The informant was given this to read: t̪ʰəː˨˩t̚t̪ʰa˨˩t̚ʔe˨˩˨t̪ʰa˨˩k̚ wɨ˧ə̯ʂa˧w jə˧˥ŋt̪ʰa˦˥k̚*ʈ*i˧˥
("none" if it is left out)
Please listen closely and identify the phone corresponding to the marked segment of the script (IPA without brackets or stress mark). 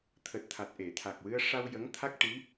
ʈ